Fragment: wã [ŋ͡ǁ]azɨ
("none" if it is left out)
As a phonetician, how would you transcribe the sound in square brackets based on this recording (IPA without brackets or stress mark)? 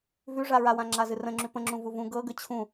ŋ͡ǁ